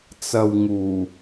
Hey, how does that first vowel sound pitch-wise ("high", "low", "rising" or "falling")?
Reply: low